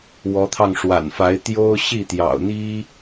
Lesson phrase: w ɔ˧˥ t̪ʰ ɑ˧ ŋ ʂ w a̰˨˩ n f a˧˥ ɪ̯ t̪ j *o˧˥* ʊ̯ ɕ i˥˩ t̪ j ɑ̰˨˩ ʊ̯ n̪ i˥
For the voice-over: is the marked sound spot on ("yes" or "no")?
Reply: no